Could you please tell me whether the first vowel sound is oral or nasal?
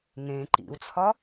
nasal